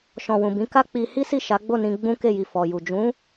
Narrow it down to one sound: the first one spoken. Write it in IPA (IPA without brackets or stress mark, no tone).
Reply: ʃ